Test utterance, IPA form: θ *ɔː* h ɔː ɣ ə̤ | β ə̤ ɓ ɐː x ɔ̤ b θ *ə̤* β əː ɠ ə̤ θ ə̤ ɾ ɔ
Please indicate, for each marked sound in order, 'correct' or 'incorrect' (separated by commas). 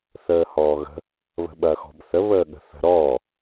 incorrect, incorrect